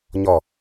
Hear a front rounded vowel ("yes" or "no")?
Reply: no